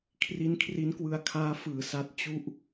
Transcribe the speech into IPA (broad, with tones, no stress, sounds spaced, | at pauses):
kʰ r i˦˥ n kʰ r i˦˥ n k w ɯ˧ a̯ kʰ aː˦˥ f ɯː˨˩ s a˦˥ t̚ t͡ɕ u˦˥ ʔ